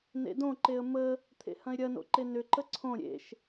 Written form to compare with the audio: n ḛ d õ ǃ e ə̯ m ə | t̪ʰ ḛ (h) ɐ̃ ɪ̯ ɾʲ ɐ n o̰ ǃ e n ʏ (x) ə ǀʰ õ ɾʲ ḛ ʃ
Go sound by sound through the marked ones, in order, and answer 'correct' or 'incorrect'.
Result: correct, incorrect: ǃ

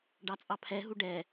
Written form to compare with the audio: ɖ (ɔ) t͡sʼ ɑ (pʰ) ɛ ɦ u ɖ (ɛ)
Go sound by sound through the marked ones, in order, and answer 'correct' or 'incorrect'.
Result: incorrect: ɑ, correct, correct

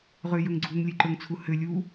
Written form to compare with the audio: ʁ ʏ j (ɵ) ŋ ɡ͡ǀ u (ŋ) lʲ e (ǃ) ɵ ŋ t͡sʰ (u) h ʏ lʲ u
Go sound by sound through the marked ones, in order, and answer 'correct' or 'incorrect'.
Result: correct, correct, correct, correct

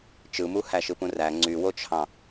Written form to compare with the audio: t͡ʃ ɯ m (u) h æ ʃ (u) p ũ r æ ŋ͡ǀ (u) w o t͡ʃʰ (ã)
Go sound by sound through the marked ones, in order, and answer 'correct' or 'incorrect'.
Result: correct, incorrect: ɯ, incorrect: y, incorrect: ɑ̃

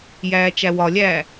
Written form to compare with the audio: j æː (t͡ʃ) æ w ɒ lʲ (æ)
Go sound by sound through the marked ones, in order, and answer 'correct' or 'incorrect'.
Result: correct, incorrect: æː

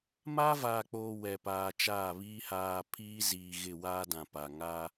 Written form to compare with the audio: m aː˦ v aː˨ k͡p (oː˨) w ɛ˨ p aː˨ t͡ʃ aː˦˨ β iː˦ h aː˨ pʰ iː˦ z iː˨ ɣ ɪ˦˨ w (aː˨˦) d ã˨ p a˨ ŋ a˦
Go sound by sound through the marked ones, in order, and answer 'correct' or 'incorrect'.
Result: correct, incorrect: aː˦

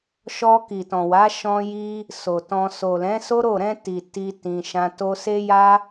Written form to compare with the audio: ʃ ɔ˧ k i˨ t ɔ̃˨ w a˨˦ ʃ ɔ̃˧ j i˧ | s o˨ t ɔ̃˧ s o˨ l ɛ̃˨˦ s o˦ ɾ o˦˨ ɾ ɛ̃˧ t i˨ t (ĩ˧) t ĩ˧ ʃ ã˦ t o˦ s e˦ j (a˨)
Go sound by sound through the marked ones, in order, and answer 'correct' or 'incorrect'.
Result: incorrect: i˧, incorrect: a˦

